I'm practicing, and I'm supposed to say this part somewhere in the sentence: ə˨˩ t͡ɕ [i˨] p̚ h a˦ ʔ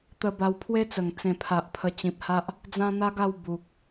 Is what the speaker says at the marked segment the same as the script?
no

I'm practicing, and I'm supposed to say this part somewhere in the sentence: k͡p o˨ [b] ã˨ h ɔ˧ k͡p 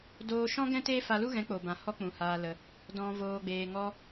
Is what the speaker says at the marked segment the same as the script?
yes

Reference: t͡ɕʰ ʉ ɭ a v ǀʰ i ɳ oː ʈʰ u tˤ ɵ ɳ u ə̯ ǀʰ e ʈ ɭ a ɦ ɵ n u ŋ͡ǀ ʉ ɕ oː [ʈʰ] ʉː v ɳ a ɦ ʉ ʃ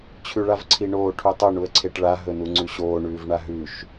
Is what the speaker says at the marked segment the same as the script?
no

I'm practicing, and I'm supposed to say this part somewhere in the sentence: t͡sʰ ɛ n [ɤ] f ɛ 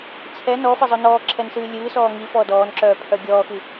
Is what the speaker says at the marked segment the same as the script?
no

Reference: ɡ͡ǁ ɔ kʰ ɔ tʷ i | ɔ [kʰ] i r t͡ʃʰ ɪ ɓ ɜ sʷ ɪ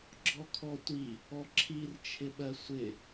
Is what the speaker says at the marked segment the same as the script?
no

